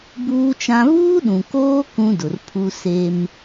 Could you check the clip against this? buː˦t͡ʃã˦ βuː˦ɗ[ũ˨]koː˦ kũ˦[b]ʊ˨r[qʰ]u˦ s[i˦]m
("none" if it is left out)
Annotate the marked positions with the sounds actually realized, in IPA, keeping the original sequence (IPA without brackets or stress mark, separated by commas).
ũ˨, d, pʰ, e˦